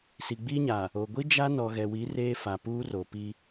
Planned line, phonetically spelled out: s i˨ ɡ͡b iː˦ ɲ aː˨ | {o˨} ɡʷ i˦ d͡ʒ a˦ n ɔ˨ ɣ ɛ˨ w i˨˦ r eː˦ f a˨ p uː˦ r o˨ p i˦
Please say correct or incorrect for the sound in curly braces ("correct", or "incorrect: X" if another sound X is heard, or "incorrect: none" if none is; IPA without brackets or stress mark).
correct